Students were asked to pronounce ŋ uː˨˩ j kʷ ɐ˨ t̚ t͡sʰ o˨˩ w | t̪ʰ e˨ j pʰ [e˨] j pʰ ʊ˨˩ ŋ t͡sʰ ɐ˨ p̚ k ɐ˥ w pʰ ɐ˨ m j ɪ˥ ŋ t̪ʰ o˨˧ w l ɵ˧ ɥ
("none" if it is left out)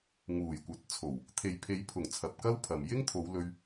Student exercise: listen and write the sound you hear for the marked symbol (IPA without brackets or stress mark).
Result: e˨˧